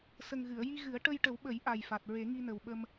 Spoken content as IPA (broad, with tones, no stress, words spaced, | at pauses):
sə˨˩ŋɣɨ˨˩˨ə̯ ji˧ɣɨ˨˩˦ə̯ ʈə˧jʈə˨˩˦wɓə˨˩˦j ʔa˨˩jfa˨˩t̚ ɹe˨˩˦ŋi˧nə˨˩wɓə˧m